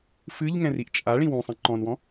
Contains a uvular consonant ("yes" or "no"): no